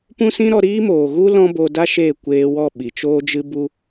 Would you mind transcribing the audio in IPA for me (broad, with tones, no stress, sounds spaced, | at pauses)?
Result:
p ũ˦ s ĩ˦ ɾ ɔ˧ ɾ iː˦ m oː˨ ɣ u˦ l ɔ̃˦ b o˧ d a˦ ʃ eː˦˨ kʷ eː˧ w ɔ˦˨ ɓ i˨ t͡ʃ oː˧ d͡ʒ ɨ˧ b u˧